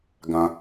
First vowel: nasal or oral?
nasal